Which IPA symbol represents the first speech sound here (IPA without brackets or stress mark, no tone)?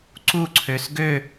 ǀ